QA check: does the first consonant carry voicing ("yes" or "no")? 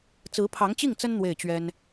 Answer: no